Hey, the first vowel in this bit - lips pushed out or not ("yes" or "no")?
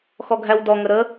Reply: yes